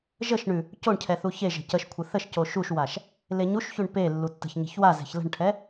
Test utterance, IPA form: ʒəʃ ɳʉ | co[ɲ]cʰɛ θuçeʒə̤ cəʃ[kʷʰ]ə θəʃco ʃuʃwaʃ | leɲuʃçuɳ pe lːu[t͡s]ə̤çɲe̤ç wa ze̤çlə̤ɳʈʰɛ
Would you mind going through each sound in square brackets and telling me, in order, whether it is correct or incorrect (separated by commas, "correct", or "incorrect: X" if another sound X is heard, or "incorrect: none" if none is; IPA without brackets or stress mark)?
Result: incorrect: ɳ, correct, incorrect: tː